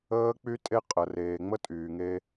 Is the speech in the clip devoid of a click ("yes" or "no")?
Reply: yes